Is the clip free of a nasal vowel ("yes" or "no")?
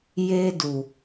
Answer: yes